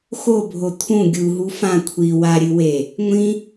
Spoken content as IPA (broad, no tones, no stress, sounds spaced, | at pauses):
x o bʱ o t̪ʰ ũ ɡʲ u ɦ u f ã kʷʰ i w a ɾʲ ɨ w e | ŋʷ ĩ